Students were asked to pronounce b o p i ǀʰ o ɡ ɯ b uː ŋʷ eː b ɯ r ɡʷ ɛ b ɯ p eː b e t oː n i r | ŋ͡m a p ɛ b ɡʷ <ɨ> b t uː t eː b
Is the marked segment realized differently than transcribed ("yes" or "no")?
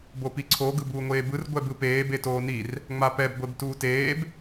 yes